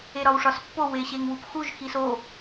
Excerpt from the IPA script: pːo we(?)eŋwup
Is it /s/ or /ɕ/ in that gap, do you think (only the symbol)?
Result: ɕ